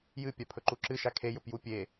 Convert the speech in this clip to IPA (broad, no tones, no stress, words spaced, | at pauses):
jɨpʲapʰɵǃu ǁɨʃa kʰejɵpju pʲe